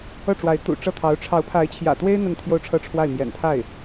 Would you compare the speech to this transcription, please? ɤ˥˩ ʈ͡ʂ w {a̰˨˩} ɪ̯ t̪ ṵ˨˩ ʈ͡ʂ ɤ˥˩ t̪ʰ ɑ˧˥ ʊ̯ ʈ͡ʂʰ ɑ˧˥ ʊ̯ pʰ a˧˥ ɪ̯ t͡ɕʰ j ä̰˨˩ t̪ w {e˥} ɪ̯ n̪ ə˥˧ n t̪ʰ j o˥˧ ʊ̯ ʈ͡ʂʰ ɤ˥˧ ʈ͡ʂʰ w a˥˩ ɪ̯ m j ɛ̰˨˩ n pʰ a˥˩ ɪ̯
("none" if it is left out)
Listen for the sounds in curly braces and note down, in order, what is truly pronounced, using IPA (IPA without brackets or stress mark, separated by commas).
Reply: a˧˥, e˥